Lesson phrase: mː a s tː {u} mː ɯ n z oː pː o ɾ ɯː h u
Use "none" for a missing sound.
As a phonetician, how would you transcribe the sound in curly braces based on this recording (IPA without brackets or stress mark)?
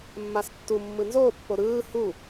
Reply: u